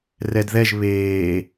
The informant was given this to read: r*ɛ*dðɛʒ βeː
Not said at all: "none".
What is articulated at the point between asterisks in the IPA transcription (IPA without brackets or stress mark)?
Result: ɛ